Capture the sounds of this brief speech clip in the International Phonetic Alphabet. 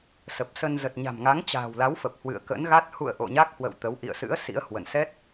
s ə˨˩ p̚ s ə˧ n z ə˨˩ t̚ ɲ a̤˨˩ m ŋ a˨˦ ŋ t͡ɕ a̤ː˨˩ w l a˨˦ w f ə˨˩ p̚ h w ɨ̰˧˨ ə̯ k ə̰˧˥ n ɣ a˦˥ t̚ h ṵ˧˨ ə̯ ʔ o̰˧˨ ɲ a˦˥ k̚ h w ə̰˧˨ w t̪ ə˨˦ w ʔ ḭ˧˨ ə̯ s ɨ̰˧˥ ə̯ s ḭ˧˥ ə̯ h w ə̰˧˨ n s ɛ˦˥ t̚

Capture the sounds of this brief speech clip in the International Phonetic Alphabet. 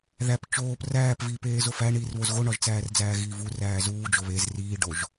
ð æ p t͡ʃ oː p r æː p v iː p eː z o f æ ɳ iː r β o z ɣ o ɳ ɒ ʒ t͡s æː r d͡z æː ɣ iː v u r æː z uː d͡ʒ o β e z r iː ɖ o ʒ

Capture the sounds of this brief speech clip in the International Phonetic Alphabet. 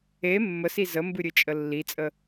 e mː ə s i z ə m b ɨ ɾʲ ɨ t͡ʃʼ ə lː i t͡sʼ ə

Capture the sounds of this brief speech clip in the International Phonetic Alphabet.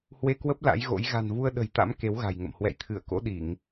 h w e˧ k w ə˦˥ p̚ l a̰˧˥ j ɣ o̰˧˥ j ɣ a̤˨˩ n v u˧ ə̯ ɗ ə̤˨˩ j t̪ a̰˧˥ m k e˨˦ w ɣ a̤˨˩ j ŋ ə̰˧˨ m h w ɛ̰˧˨ j t̪ʰ ɨ˧˩ ə̯ k o̰˧˥ ɗ i˧˩˨ ŋ

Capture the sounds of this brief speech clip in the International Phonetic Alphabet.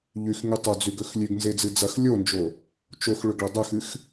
ʎ ʉ x ŋ ʉ tˤ o d͡z ʉ ɡ ɵ x lʲ ʉ ɡ n z e d͡z ɨ d͡z ɐ x lʲ o n d͡ʒ o | t͡ʃ o x ɭ ɵ ɡ ɭ ɐ dˤ ɵ x ɨ x

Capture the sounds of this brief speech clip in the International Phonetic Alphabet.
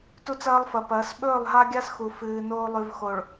t u˦ t͡s ɐː˦ lˠ f ɐ˨ p ɐː˨˦ s ɓ ɵː˦˨ lˠ ɦ a˦ ɡʲ a˦ s x u˨ f ɨː˨ n oː˦ lˠ ʉ˨ v x o˨ ɭ

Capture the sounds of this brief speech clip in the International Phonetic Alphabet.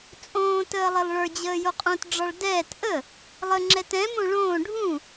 t͡sʼ õː t əː lˠ ɪ lˠ ɭ ə˞ d͡ʑ əː j o qʼ õ t ɖ͡ʐ ɒ ɭ d ɛː t ʔ ə | lˠ ə ŋ͡ǁ ɛ t ɛ̃ m õ ɭ õː ɖʱ ũ

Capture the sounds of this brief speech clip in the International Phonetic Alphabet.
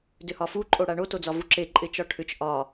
d ʏ h ɒ f u ǃʼ o ɽ a ɳ o t o d͡z ɒ v u ǁ e ǃʼ ɪ t͡ʃ ɒ ʈʰ ʏ t͡ʃ ʔ ɒ

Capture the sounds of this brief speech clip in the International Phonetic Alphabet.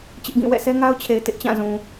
t͡ɕ ɪ˦ ʔ ɡ ĩ˦˨ w ɛ̰˦˨ sʰ ɛ˦ ŋ a˦ ʊ̯ t͡ɕʰ e˨ ɪ̯ t ɪ˦ ʔ t͡ɕ ã˦˨ z ũ˨

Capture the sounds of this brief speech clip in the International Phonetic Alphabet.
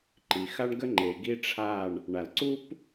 ǃ i˨ x a˦ ɳ ɡ ə˦ ŋ͡ǃ e˨ ɡ i˦ ʈ͡ʂʰ a˦˨ ɳ | ɳ a˨ l ǀ u˦ p

